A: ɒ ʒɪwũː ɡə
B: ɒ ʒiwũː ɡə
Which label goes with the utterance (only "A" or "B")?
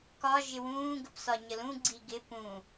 A